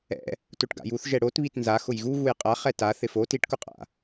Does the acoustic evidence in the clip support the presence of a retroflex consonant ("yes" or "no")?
yes